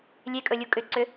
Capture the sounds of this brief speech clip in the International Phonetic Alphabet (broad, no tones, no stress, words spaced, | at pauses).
lʲekʼɵlʲu kʼʏǀʏ